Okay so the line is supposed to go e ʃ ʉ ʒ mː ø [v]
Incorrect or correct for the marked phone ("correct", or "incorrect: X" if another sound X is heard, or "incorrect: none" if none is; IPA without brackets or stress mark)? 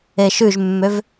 correct